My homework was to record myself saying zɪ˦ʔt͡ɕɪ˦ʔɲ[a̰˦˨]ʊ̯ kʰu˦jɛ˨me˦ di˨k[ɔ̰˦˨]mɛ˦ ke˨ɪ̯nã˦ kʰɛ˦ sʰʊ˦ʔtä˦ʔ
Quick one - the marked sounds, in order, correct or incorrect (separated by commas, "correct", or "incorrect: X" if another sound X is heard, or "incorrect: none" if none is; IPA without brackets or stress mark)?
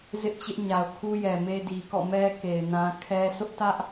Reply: incorrect: a˨, correct